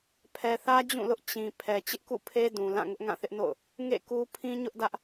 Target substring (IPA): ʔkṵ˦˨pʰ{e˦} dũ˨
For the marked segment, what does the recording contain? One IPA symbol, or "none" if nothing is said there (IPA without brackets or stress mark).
e˦